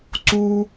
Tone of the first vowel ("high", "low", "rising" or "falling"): high